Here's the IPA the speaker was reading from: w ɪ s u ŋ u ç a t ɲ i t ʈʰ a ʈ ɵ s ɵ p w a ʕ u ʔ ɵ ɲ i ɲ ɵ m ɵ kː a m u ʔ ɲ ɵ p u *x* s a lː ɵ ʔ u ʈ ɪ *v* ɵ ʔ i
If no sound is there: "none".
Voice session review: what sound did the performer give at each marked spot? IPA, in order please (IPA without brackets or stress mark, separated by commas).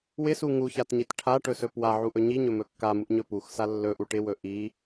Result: x, w